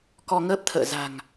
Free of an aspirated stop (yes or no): no